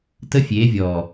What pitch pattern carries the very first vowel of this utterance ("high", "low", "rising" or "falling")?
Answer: high